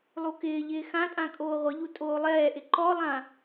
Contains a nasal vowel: yes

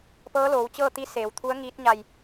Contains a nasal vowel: no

